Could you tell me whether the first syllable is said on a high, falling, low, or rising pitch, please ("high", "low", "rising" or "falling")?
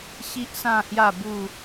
high